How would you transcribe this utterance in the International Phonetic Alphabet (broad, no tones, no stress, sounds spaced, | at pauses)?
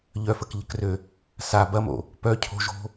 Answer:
ʎ œ f ə k ʎ ə̤ k r ø | s a b ɐ m o̰ | p œ cʰ o̤ ʒ o̤